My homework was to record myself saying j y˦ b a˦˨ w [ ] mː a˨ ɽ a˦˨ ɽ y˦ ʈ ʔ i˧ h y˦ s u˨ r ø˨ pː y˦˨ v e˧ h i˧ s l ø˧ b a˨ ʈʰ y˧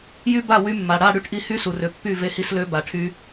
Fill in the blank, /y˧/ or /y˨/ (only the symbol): y˧